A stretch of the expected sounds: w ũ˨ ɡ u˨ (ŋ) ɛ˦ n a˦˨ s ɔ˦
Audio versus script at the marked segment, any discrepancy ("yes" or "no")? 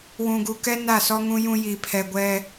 yes